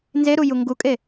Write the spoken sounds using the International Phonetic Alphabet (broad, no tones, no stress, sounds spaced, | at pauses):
n z e ɾ u j u ŋ ɡ u kʼ e